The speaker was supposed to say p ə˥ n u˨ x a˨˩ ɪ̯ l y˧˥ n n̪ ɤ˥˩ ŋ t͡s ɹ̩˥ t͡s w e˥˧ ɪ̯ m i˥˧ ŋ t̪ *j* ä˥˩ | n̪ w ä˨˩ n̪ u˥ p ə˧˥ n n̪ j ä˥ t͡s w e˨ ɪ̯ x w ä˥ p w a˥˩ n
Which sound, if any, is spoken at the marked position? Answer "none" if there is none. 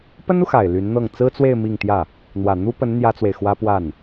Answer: j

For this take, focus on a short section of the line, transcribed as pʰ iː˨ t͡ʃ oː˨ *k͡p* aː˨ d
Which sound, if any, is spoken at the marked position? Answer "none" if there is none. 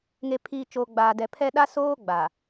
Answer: ɡ͡b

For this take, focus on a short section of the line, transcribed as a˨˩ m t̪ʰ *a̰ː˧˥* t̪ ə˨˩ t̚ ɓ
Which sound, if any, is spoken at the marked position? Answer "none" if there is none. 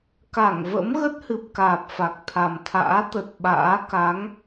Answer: a̰ː˧˥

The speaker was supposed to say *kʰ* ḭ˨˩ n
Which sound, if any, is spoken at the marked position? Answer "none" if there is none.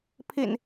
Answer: pʰ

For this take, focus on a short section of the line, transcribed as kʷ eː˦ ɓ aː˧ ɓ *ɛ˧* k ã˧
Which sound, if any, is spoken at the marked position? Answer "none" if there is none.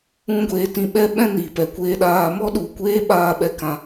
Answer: ɛ˧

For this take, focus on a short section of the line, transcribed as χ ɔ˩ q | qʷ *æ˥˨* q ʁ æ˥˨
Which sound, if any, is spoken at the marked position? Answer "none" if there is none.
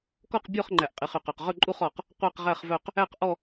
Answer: æ˥˨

